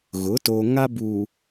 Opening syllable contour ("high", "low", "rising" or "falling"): rising